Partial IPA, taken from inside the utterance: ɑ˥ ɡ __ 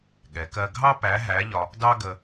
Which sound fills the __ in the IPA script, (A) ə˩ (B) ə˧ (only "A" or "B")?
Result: B